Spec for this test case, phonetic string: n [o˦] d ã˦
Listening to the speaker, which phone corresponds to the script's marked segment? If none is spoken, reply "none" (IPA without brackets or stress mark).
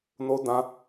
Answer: o˦